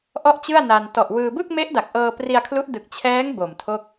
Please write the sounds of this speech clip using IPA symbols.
ʔ ɔ˥˩ ʔ t͡ɕ ɯ˥˩ a̯ n a˧ n t ɔ˨˩ ʔ w ɯː˧ b ɯ˥˩ k̚ m e˦˥ ʔ d a˨˩ k̚ ʔ ɤː˧ p r i˧ a̯ kʰ l u˦˥ ʔ d ɯ˨˩ k̚ t͡ɕʰ ɛː˦˥ ŋ b o˨˩ m tʰ o˥˩ k̚

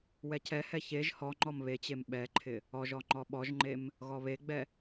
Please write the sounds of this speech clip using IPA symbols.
w ɛ cʰ ɛ h ɛ ç e ʒ h ɔ ŋ͡ǃ ɔ m β e t͡ɕ e m ɓ ɛ ǃʰ ɪ | ɔ ʒ ɔ ŋ͡ǃ ɔ ɓ ɔ ʒ ŋ͡ǃ e m | ɣ ɔ β e ɡ͡b ɛ

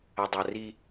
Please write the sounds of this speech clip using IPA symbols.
ɐ˨ dˤ a˨ r i˦

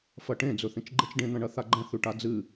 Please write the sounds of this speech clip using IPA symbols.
f ɐ ʈ ẽ d͡z ɵ θ ĩ t͡ʃ ɡ͡ǃ e t͡ʃ ɖ ẽ n̪ ɐ̃ ɳ ɐ θ a ɡ͡ǃ ɐ̃ θ ʉ ʈ a d͡z ɨ

